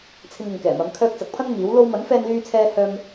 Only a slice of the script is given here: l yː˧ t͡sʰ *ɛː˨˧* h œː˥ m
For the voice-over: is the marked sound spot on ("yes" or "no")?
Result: no